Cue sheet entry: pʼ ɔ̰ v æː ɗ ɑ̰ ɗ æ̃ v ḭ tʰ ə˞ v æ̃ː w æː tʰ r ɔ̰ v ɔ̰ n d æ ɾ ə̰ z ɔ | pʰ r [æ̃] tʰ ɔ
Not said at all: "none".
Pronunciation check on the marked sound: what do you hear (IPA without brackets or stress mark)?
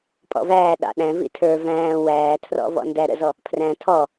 æ̃